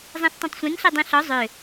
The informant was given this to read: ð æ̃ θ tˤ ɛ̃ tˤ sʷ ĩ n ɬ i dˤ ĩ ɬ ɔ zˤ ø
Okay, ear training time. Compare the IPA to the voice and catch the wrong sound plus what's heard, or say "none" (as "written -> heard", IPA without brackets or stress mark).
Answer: ð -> zˤ